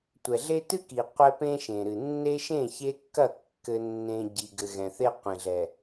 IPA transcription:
tʷ ɛ˨ ɮ e˦ t ɨ˦ k i˨ qʷ ɛ˦ p ẽ˦ ʃ ẽ˨ ɾ ɨ˨ nː e˦ ʃ ẽ˦˨ ç e˦ kː ɐ˦˨ kː ɘ˦ nː ẽ˦ ɟ i˨ ɡ ɘ˨ ɣ ɛ̃˨ θ e˦ qʷ ẽ˨ ɮ ɛ˨

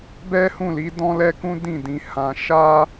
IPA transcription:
b ɛ˦ h ũ˦˨ l i˨˦ d ɔ̃˦ l ɛ˦ k ũ˦ d ĩ˦˨ d ĩ˧ h ã˧ ʃ a˦

